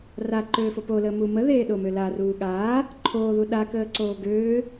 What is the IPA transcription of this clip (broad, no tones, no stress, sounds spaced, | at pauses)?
r a ǃ øː f o p o l əː m u m ə ð eː ɗ o m ø l a r uː ɠ aː | ǃʰ oː ð u ɗ a k əː ǀ oː ɡ øː